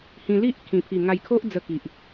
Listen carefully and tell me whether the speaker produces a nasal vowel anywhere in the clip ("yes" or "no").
yes